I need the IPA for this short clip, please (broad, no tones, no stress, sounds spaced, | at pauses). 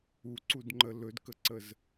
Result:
u ǀ u d ŋ͡ǃ ə l ɵ d k ə ǀ ə z